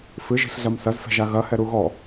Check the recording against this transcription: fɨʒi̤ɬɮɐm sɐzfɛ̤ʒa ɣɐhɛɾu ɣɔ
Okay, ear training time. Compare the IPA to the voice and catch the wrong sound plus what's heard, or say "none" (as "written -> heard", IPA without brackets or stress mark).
none